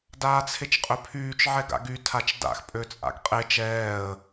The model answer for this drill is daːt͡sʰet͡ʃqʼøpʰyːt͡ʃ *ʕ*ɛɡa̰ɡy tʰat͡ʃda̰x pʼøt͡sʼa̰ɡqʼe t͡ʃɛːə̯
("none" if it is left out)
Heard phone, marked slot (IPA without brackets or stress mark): ʕ